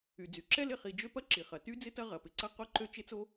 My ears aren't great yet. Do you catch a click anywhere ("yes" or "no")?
yes